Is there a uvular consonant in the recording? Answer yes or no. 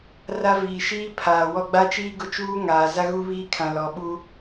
no